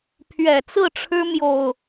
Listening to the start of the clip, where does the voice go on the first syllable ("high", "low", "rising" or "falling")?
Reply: low